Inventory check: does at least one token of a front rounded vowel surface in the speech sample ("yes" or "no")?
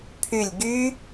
yes